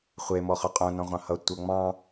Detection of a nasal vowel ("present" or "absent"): present